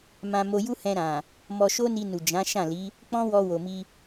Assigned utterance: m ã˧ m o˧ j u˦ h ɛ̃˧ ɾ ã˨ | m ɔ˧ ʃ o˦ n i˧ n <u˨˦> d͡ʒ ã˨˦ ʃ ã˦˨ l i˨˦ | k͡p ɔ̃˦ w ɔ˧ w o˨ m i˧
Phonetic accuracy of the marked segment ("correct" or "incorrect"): incorrect